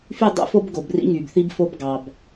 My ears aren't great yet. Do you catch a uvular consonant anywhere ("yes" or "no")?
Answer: no